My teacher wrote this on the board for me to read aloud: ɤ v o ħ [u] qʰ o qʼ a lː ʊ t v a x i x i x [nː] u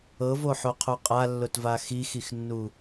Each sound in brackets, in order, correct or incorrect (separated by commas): incorrect, correct